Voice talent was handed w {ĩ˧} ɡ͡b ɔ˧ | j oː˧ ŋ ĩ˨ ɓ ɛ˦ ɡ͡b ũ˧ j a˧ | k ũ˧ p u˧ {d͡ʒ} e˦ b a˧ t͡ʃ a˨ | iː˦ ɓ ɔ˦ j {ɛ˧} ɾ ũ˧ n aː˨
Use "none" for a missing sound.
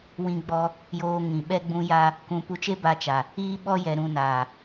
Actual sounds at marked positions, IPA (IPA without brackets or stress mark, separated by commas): ĩ˧, t͡ʃ, ɛ˧